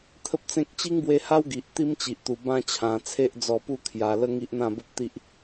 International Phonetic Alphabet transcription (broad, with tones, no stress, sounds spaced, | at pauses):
t̪ʰ ə˦ p̚ t͡s ẽ˦ k̚ t͡ɕ i˦ ŋ b w e˧ h a˦ w ɡ i˨ ʔ t̪ i˦ m t͡ɕ i˨ ʔ t̪ u˨˩ b ã˥˧ t͡ɕʰ ã˨˩ t͡sʰ e˦ ʔ d͡z ɔ˧ p u˥˧ kʰ j a˧ l ə˦ ŋ i˦ ʔ n̪ ã˥˧ b ə˦ p̚ t̪ i˦ ʔ